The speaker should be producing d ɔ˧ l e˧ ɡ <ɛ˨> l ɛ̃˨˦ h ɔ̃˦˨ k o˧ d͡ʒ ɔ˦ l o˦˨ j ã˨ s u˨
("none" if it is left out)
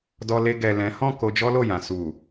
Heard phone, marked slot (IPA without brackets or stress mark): ɛ˨